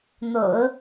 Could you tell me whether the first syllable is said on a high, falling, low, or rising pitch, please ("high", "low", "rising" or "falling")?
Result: low